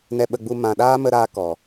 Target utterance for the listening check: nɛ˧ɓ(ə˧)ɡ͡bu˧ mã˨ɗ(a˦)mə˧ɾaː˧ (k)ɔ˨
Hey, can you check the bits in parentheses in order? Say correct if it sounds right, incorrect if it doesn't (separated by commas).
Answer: correct, incorrect, correct